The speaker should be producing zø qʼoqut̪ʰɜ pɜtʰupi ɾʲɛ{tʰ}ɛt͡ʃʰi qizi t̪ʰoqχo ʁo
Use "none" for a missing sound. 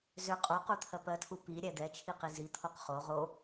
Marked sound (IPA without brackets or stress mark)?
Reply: d̪